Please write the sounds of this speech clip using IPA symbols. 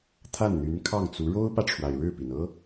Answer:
t̪ʰ a˥˩ n n̪ y˧˥ n kʰ ɑ˥˩ ŋ t͡s u˧˥ ɻ o˥ ʊ̯ p ä˨ ʈ͡ʂʰ w a˩ ɪ̯ ɻ ɻ̩˥˩ p i˩ n ɤ˥

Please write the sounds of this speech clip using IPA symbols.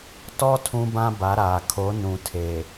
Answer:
t ɔ˦ tʰ ũ˦ b ã˦ b a˨˦ ɾ aː˨ kʰ o˨˦ n ũ˨ tʰ eː˨

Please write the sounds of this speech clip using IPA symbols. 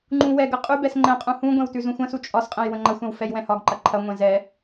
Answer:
ŋ͡ǃ ũ w ɛ ɡ ə qʼ ʉ b ɛ s ŋ͡ǃ ɛ̃ qʼ ũ h ũ ɡʷ ɛ̃ w t ʉ z ũ xʷ ə̃ s u t͡ʃʼ ɒ s qʼ ɛ̃ j w ə̃ ŋ͡ǃ ɐ xʷ ɛ̃ w f ɛ j w ɛ̃ h ɒ ɡ ǃ ɐ ǃʰ ɐ ŋʷ ɛ̃ z ɛ

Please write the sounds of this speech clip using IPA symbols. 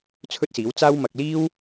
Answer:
t͡sʰ ɵ˥ t̚ s iː˨˥ w t͡s aː˥ w m ɐ˧ k̚ l iː˥ w

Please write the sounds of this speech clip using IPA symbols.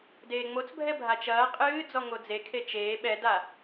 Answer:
d eː ŋ͡m o t͡s bʱ ɛ bʱ a t͡ʃ ɐː qʼ ɨː d͡z ɔ ŋ o d͡z e kʰ e t͡ʃ eː ɓ ɛ d a

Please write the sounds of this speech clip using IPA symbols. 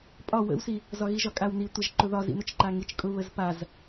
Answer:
pʼ ɒ w ə̰ w s i | z ɒ ɣ i ʒ ɒ kʼ a w n i tʷ ə ʒ ǃ ʊ ð ɒ z ḭ n ʊ t͡ʃ ǃ a ŋ i t͡ʃ kʼ ʊ β ə z p a z

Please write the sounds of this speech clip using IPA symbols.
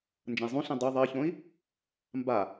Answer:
n d͡ʒ ɐ̃ i̯ zˤ ũ ɬ ĩ dˤ u ðˤ ɐ i̯ ç õ i̯ | m b a

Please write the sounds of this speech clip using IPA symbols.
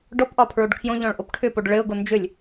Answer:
ɖ ɔ p ʔ ɒ pʰ ɹ o ɖ kʰ j õ ʎ ɔ̃ ɭ ʔ o p ʈʰ ʏ p o ɖ ɭ ɘ ʊ̯ ɡ o n d͡ʒ ʏ lʲ

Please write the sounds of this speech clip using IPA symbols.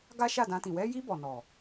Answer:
ɡ a˦ ʃ a˦˨ d ã˧ t ĩ˨ w ɛ˧ j i˧ b ɔ˨ n ɔ˨

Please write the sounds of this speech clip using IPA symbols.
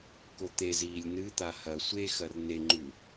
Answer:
k o t̪ e z iː lʲ n ɨ t̪ a h ɐ sʷ e x ɐ r n e ŋ͡ǃ ʉ

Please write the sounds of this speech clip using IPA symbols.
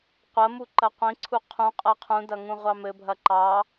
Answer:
qʷ ɐ m u ǃ ɐ qʷ ĩ ǀʰ u qʰ ũ qʼ ɐ qʰ ũ d ɐ ŋ ũ ʁʷ ɑ m ɘ bʱ ɐ ǃ ɑ

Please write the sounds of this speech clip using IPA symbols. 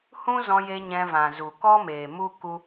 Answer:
h ũ˦ z ɔ̃˧ j e˧ ɲ ɛ̃˧ v ã˨ z u˨ k ɔ˦ m eː˨ m u˦ k u˦

